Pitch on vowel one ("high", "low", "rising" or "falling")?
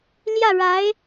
falling